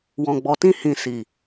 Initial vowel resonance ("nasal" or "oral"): nasal